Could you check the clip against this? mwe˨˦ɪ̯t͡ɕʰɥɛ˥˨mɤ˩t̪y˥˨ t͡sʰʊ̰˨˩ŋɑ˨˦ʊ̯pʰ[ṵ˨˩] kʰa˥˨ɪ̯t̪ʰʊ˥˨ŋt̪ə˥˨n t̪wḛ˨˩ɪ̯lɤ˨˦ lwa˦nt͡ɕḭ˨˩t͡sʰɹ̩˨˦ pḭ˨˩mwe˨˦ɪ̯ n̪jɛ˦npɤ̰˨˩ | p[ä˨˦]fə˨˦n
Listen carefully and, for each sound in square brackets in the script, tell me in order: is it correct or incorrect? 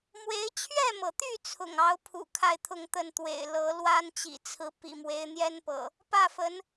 correct, incorrect: ä˥˨

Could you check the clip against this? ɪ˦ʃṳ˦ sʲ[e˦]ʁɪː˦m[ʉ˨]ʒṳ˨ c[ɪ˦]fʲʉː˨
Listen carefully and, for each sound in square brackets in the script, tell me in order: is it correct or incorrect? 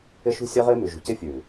incorrect: ɛ˦, correct, correct

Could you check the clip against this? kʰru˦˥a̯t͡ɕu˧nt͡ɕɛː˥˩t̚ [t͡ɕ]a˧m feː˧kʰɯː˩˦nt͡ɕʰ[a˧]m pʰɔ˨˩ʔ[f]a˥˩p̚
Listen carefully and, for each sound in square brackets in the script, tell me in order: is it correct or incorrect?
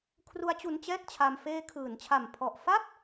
incorrect: t͡ɕʰ, incorrect: a˨˩, correct

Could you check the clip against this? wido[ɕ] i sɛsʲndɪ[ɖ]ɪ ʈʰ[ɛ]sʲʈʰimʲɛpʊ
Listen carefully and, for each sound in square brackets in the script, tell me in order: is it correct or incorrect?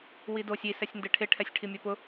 incorrect: sʲ, incorrect: ʈʰ, correct

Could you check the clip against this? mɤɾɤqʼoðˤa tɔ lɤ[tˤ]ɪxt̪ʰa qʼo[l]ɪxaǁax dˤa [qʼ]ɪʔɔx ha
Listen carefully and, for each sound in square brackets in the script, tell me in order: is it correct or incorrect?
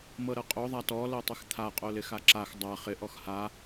correct, correct, incorrect: χ

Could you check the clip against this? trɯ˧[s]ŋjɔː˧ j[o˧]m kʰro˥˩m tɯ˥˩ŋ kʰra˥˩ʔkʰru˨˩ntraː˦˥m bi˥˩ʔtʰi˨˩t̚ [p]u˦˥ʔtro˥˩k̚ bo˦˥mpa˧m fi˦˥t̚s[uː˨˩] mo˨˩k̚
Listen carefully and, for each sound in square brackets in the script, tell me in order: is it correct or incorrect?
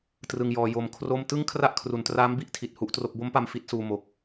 incorrect: none, correct, incorrect: h, incorrect: uː˧

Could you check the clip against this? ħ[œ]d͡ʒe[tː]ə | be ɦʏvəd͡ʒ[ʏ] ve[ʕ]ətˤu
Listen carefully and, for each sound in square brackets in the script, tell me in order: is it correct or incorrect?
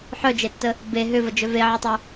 correct, correct, correct, correct

